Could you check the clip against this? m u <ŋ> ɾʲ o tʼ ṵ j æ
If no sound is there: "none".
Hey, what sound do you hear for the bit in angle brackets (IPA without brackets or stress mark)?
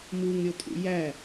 ŋ